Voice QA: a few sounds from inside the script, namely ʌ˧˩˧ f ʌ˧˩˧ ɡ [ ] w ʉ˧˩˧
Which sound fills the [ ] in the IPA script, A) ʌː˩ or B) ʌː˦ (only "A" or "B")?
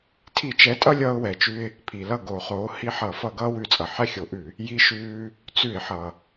B